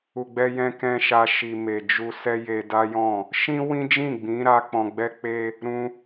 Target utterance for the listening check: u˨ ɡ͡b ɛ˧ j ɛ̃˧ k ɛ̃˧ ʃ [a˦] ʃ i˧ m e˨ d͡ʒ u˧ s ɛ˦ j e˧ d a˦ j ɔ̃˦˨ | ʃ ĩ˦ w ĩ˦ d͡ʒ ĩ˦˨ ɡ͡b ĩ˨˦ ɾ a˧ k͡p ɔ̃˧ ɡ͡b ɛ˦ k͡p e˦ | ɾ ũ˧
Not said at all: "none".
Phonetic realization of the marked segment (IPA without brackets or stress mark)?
a˦